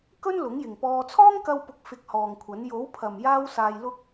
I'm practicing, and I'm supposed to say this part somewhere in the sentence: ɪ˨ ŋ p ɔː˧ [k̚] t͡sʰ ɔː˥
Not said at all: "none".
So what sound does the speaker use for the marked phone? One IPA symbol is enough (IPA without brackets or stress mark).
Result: none